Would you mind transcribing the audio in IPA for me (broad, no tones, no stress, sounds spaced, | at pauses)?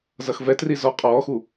z ʌ x v ɛ t r i z ɔ qʼ ɔː x u